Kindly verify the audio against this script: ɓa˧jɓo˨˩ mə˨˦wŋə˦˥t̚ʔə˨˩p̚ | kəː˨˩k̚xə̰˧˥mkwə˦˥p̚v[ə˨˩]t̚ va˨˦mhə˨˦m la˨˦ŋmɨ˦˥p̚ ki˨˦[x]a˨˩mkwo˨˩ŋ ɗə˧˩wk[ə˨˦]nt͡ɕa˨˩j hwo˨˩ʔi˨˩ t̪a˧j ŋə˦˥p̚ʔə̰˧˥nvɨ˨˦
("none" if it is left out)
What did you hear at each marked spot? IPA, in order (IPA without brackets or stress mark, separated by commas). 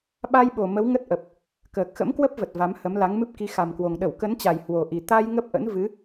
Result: ə˨˩, x, ə˨˦